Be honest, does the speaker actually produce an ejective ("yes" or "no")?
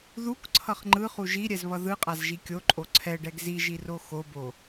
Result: yes